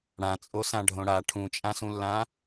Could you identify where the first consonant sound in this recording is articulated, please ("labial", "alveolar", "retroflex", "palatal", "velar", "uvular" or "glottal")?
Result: retroflex